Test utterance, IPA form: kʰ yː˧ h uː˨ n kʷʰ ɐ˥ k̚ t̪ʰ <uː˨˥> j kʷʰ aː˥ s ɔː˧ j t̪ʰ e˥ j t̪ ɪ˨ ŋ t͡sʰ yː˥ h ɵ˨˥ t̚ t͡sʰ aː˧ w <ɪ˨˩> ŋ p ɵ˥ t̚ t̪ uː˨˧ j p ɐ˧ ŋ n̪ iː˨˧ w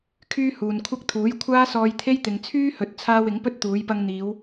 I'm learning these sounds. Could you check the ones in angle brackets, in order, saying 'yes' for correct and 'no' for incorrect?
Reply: yes, no

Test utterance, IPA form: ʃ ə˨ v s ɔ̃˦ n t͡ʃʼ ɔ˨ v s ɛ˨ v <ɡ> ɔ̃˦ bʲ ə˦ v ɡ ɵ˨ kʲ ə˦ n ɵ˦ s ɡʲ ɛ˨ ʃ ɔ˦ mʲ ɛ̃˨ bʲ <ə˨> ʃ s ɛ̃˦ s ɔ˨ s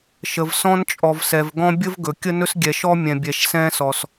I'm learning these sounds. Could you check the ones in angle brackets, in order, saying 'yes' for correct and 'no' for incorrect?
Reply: yes, no

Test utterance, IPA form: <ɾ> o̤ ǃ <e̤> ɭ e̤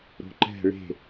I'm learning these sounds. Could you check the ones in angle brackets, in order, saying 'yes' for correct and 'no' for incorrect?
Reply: yes, no

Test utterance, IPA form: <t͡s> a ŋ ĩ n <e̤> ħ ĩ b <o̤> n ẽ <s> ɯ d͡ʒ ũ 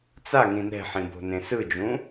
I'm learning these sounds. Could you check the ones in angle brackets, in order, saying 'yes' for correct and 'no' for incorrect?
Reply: yes, no, yes, yes

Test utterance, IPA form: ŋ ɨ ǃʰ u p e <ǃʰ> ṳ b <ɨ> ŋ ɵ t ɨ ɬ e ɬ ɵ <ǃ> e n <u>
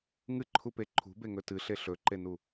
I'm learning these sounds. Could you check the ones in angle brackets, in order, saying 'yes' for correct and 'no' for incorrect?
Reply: yes, no, yes, yes

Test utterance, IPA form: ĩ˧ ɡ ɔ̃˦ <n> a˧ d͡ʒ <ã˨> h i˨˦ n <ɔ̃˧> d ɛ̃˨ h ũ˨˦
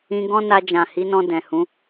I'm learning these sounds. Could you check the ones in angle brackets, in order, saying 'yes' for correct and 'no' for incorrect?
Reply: yes, yes, yes

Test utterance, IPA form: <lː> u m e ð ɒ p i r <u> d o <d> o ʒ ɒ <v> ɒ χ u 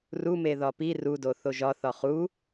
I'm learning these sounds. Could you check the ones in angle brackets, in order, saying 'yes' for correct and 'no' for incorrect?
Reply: no, yes, no, no

